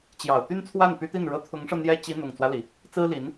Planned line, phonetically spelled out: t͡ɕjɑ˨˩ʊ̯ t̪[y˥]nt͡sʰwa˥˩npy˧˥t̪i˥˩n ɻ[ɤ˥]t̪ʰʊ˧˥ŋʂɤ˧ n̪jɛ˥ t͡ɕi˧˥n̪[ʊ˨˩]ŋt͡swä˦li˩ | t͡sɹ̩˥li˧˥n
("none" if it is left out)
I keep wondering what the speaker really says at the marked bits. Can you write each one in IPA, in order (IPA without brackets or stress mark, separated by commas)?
y˥, ɤ˧˥, ʊ˨˩